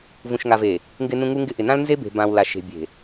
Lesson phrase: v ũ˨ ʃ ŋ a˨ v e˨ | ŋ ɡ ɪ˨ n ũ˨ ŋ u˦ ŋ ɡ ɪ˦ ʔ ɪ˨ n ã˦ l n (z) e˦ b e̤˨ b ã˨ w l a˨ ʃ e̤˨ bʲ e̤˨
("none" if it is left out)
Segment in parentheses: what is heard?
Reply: z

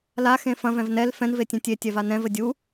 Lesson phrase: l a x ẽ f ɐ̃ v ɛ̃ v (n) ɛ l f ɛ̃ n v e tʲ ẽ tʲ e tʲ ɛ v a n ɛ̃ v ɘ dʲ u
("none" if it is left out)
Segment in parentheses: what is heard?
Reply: n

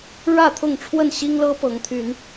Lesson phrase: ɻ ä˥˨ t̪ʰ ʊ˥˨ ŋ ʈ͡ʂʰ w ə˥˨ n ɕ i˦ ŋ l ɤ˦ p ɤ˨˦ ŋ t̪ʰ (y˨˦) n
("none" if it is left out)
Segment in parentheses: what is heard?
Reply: y˨˦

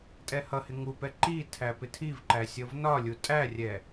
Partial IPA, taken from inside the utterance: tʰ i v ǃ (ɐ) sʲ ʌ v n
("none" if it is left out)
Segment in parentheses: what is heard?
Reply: æ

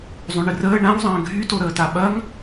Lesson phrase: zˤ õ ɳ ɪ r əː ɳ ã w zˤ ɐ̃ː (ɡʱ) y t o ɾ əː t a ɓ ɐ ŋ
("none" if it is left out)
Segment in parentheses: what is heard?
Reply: ɡʱ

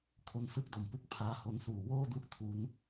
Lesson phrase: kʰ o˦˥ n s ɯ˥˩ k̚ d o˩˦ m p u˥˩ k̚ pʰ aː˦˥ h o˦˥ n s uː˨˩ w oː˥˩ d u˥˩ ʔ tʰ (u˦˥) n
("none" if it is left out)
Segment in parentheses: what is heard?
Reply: u˦˥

